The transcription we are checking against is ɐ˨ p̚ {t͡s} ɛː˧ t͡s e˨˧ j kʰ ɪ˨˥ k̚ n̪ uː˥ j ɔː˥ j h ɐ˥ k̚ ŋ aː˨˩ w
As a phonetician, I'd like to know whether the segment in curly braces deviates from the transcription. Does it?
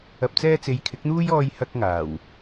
no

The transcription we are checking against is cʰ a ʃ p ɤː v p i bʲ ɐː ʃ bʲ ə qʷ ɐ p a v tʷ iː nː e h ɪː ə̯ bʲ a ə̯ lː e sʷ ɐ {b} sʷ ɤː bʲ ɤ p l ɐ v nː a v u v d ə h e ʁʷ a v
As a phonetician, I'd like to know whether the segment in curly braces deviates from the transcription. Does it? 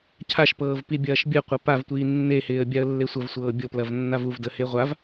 yes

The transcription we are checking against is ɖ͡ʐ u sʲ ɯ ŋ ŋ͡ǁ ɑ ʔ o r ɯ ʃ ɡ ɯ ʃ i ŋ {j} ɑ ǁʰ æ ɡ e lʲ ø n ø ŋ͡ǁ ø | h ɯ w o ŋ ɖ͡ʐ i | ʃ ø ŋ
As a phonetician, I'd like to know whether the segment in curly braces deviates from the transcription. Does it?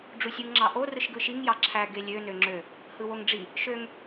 no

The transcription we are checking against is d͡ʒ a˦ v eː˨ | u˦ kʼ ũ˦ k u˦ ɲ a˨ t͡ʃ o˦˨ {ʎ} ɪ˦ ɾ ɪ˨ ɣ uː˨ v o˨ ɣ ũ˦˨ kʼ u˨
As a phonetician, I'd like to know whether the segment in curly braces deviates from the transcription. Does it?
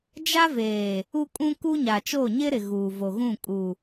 yes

